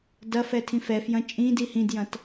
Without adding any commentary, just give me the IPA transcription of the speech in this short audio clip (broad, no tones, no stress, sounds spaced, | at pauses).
d ɐ f ɛ tʰ ĩ f ɛ f j ɐ̃ t͡ʃʼ ĩ d i h ĩ d j ɐ̃ t